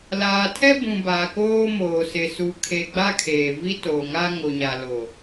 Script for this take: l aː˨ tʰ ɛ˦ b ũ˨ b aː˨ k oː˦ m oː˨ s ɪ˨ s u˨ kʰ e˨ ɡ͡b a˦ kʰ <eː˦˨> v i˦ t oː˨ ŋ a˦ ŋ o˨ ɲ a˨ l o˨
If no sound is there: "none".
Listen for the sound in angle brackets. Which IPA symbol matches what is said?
eː˨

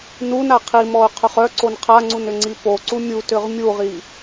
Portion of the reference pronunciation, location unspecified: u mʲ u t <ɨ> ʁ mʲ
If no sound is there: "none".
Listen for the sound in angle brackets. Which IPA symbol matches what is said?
ʏ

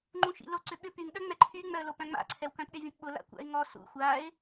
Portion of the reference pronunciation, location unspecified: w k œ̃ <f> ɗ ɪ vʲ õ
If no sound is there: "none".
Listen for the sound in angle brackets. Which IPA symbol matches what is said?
p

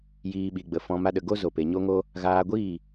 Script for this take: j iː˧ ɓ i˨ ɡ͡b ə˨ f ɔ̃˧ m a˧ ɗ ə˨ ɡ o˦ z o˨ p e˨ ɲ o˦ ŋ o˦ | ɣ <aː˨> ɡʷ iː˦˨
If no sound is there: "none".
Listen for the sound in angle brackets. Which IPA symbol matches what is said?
aː˧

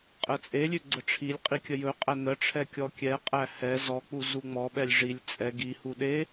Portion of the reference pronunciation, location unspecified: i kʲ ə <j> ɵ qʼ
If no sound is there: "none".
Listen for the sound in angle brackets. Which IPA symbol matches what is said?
j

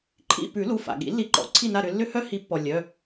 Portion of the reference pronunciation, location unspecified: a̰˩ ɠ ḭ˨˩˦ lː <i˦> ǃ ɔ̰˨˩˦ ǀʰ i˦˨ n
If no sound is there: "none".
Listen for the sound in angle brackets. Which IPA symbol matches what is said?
i˨˦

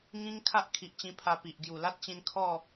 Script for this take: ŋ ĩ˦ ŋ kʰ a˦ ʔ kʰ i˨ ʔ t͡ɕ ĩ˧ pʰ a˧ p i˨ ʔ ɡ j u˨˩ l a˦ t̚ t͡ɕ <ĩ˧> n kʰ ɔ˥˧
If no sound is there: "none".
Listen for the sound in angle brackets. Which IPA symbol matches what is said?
ĩ˧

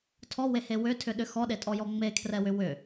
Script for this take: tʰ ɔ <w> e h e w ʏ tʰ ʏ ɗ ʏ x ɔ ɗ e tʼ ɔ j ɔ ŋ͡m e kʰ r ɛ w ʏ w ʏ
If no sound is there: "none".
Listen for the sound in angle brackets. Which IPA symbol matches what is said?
w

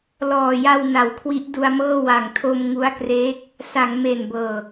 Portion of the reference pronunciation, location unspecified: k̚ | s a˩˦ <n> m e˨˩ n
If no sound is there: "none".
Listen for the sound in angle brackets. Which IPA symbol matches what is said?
ŋ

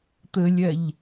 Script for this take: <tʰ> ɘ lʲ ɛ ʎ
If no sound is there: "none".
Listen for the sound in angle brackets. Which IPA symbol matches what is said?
t̪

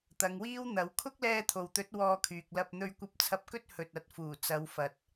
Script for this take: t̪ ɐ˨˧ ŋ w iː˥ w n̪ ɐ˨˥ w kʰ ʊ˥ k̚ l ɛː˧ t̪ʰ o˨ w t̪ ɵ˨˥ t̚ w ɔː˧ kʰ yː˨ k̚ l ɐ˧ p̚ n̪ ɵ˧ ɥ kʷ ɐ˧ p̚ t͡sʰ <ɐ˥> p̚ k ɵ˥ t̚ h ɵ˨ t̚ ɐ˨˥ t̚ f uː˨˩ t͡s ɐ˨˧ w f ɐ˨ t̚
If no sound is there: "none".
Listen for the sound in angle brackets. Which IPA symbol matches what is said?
ɐ˧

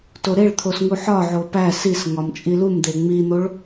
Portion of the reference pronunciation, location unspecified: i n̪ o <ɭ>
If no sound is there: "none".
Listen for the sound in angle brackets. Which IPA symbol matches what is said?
ɭ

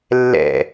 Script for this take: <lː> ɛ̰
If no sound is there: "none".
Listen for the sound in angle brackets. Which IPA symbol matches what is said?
lː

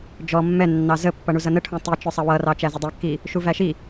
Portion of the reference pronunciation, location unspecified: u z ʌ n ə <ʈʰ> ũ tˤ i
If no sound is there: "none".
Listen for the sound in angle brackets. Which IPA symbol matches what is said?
ʈʰ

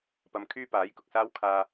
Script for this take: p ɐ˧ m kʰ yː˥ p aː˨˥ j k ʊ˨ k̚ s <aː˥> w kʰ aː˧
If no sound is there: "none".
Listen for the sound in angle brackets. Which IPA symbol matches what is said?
aː˥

